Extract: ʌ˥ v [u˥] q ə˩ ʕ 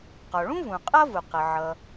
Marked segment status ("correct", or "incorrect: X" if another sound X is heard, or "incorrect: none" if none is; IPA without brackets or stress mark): incorrect: u˩